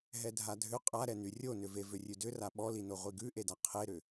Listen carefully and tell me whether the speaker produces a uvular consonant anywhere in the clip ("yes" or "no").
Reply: yes